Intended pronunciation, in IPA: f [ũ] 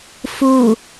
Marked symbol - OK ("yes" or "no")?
no